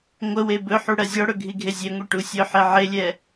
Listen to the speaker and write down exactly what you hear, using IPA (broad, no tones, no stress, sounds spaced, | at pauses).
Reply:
ŋʷ ə w e b ɵ ħ u ɽ ɜ zʲ ɔ ɽ ɵ ɡʱ i ɡʱ e zʲ e ŋʷ e ʈ u sʲ ɵ ħ e ʕ e lʲ ɛ